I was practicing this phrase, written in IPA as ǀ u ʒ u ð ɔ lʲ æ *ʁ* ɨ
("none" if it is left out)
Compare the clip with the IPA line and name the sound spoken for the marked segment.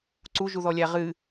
ʁ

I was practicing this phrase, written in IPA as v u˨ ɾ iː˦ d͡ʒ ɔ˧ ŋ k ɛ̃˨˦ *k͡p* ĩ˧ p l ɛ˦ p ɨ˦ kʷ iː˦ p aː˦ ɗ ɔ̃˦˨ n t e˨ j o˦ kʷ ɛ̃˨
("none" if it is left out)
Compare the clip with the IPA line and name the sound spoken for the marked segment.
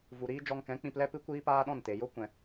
k͡p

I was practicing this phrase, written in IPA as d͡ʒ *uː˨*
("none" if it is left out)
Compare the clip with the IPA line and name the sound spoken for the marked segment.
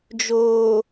oː˨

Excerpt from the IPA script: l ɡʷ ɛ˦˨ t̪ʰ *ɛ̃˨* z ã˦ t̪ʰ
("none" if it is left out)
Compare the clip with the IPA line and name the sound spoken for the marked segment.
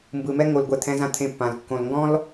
ɛ̃˦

